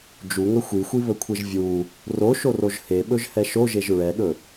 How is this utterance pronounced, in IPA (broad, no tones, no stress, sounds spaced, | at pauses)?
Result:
d͡ʒ u ŋ ɵ xʷ i xʷ i β ɵ kʷʰ e ʒ vʲ u | r o ʃ o r o ʒ h e ɓ ɵ ʒ h ɛ ʃ o ʒ e ʒ ɹ ɛ ɠ ɵ